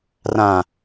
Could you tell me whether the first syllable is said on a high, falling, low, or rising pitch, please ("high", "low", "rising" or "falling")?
low